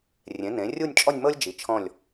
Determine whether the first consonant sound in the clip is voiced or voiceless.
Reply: voiced